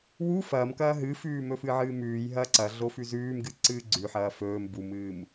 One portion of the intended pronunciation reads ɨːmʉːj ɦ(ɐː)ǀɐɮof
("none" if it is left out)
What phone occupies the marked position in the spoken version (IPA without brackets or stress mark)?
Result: ɐː